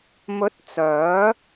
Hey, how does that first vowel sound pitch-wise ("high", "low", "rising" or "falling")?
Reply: rising